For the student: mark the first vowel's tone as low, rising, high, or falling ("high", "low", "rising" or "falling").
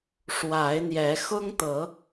rising